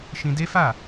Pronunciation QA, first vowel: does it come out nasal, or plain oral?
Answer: nasal